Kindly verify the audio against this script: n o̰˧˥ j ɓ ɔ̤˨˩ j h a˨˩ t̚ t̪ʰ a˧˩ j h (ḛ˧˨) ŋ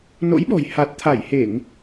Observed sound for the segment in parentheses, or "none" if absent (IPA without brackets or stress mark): e˧˩˨